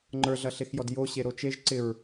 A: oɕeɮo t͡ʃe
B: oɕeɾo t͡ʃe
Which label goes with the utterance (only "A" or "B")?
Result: B